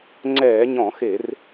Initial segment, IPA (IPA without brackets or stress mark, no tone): ŋ͡ǀ